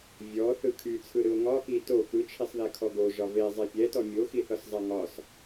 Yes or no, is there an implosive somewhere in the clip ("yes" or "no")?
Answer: no